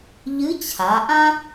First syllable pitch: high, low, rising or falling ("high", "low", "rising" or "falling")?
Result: rising